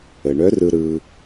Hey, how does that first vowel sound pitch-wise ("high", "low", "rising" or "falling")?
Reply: low